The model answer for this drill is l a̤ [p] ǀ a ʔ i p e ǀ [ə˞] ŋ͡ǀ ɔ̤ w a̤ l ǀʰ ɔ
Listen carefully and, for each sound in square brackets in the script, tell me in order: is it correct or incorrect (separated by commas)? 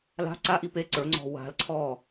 incorrect, correct